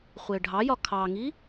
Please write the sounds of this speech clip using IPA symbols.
χʷ ɪː ɖʱ ɑ j ɒ kʰ ɑ ŋ i

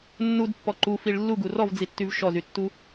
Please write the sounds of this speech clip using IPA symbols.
nː u d pː ɔ ǃ u f i ɭ lː u ɡ u r ɔ v d͡z i tː y v ʃ ɔ z y tː u

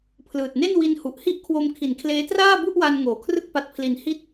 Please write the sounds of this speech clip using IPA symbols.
pʰ l ɯː˨˩ t̚ n e˥˩ n w i˧ n h u˨˩ ʔ h i˥˩ ʔ kʰ w o˧ m kʰ i˩˦ n kʰ l eː˦˥ t r aː˥˩ b u˥˩ ʔ w a˧ n ŋ oː˩˦ kʰ r ɯ˥˩ k̚ p a˦˥ t̚ pʰ l i˧ n h i˥˩ t̚

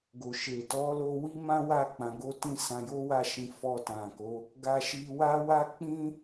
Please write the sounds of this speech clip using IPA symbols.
ɡ o˨ ʃ e˨ t ɔ˨˦ l o˧ w i˦ m ã˦ w a˦˨ k͡p ã˨˦ ɡ o˦ t ĩ˦ s ã˧ j o˦ w a˦˨ ʃ ĩ˨˦ f ɔ˧ t ã˨ k o˨˦ | ɡ a˧ ʃ i˧ w a˦ w a˦ k͡p ĩ˦

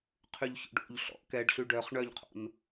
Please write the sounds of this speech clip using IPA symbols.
qʰ y ʎ ç o̰ ɖ o̰ ʎ ɬ ɔ̰ ʔ k ɛ ɖ ɬ y ɖ œ χ ɳ œ ʎ qʰ o̰ n

